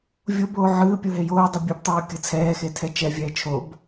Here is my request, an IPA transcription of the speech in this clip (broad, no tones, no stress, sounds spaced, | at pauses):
vʲ o b oː ʕ ɯː pʲ o ɦ e j oː dˤ ɛ bʲ u b tˤ oː kʲ ɯ t͡sʰ ɛː x e tʰ ɛ t͡ʃ ɛ vʲ ɛː t͡ʃʰ o b